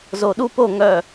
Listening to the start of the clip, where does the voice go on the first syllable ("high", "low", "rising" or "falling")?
low